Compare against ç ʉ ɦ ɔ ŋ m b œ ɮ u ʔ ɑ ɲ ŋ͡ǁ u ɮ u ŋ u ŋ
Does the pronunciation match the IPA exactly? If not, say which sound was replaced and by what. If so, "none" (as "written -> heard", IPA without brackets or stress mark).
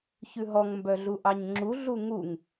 none